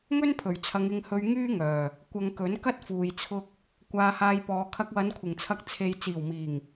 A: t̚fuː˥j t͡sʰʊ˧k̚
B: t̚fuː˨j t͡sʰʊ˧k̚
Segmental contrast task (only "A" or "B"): B